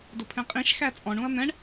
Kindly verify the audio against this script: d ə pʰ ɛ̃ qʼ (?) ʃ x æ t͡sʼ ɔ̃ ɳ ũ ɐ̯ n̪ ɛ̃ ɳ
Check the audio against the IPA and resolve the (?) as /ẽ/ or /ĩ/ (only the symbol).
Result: ĩ